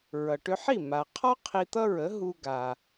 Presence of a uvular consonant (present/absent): present